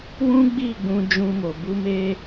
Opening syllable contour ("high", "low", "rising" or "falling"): high